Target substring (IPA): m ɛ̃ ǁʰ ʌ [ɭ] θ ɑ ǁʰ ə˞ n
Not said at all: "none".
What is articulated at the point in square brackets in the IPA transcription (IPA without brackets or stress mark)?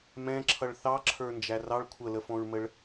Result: ɭ